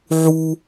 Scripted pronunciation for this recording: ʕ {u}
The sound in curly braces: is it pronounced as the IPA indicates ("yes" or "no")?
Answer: yes